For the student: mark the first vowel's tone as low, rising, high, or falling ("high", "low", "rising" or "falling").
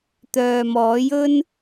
low